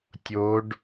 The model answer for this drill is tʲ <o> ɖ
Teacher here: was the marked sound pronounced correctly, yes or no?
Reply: yes